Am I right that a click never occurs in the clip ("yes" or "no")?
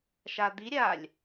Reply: yes